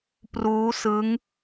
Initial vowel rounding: rounded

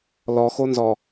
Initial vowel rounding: rounded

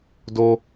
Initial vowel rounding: rounded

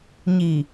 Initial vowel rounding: unrounded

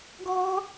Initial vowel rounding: rounded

